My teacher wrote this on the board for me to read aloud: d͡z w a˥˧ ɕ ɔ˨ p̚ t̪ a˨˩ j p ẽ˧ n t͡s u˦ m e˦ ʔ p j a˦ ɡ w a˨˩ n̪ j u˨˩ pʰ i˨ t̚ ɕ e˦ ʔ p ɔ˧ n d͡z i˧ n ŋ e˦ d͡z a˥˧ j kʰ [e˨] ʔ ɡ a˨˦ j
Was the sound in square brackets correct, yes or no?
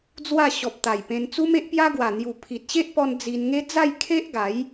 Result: no